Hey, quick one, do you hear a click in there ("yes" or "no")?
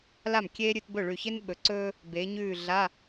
yes